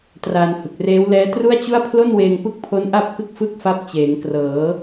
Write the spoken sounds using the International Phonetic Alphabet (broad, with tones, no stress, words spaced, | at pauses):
traː˧nhɯ˨˩k̚reː˦˥w lɛː˦˥tru˥˩a̯t͡ɕu˥˩a̯ pʰlo˥˩nweː˧ŋpɯ˦˥k̚pʰo˦˥n ʔa˥˩p̚kɯ˥˩k̚ fɯ˥˩k̚fa˦˥p̚ t͡ɕeː˩˦ŋ krɤː˩˦